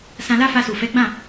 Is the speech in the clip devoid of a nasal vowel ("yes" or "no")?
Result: no